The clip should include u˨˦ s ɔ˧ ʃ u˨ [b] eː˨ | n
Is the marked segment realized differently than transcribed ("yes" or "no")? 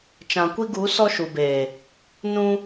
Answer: no